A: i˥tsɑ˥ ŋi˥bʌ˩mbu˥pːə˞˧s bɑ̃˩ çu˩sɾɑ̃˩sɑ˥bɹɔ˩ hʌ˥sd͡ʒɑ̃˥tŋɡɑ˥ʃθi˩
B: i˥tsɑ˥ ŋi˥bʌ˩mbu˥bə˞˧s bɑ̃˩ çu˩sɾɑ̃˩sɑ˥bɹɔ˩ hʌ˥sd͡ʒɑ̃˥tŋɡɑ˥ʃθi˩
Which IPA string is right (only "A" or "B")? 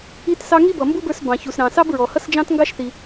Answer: B